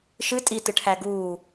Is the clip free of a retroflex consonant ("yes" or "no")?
no